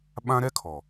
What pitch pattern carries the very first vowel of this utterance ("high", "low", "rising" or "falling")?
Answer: high